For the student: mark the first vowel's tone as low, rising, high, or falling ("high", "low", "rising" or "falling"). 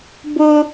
high